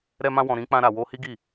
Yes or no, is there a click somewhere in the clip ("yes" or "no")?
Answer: no